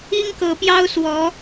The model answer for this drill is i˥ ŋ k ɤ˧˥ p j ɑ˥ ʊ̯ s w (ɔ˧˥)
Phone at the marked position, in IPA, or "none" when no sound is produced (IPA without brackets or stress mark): ɔ˧˥